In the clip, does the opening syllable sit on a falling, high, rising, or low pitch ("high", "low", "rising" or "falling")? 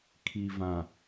low